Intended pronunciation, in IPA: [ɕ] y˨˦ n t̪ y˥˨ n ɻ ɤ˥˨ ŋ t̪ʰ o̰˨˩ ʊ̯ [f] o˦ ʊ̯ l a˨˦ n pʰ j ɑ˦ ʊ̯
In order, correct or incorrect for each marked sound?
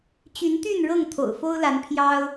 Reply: incorrect, correct

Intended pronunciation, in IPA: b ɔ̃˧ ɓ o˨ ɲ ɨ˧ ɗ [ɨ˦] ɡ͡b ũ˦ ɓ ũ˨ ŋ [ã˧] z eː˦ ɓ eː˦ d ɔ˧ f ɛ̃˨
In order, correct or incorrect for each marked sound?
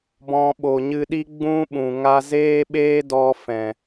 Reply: incorrect, incorrect

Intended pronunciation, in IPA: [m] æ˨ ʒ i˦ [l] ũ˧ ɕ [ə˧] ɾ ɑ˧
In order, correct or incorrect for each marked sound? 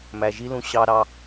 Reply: correct, correct, incorrect

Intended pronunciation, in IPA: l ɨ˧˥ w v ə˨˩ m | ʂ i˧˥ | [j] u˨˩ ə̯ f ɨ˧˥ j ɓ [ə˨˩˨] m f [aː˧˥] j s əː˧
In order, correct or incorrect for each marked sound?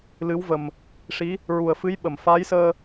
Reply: incorrect, correct, correct

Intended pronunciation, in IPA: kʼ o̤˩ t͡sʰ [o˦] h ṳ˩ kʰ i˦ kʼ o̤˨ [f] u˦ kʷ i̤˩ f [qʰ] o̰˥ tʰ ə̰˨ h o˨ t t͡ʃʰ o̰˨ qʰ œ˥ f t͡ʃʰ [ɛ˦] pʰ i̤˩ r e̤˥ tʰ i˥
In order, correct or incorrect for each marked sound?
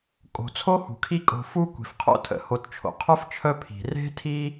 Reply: incorrect, correct, correct, incorrect

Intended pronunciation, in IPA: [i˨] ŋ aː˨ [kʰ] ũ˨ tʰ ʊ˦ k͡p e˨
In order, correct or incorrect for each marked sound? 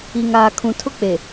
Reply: correct, correct

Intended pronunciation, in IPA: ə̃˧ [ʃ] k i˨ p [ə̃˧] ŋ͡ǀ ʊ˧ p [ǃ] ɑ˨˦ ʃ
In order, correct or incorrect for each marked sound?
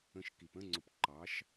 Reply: correct, incorrect, correct

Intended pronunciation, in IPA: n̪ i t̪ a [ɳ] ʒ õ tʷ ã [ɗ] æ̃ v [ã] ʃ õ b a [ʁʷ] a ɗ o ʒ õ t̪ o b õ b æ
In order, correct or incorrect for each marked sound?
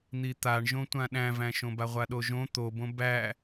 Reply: correct, correct, incorrect, correct

